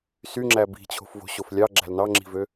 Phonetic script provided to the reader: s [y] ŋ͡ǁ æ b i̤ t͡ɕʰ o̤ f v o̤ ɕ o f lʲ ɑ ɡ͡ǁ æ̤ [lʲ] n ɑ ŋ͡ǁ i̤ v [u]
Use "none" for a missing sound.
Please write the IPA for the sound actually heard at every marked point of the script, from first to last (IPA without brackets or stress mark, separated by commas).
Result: y, l, ø